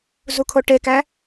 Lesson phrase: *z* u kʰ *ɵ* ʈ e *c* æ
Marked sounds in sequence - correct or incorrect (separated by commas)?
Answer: correct, incorrect, incorrect